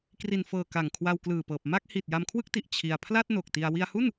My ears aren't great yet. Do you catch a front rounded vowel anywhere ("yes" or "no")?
no